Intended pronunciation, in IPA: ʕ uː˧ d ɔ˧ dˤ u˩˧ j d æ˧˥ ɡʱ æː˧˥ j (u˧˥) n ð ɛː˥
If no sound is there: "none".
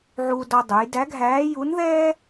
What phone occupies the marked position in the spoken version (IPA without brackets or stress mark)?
u˧˥